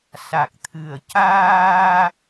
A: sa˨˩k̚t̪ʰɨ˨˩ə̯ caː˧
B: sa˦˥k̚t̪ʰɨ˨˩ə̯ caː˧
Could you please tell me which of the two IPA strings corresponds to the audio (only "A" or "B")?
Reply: A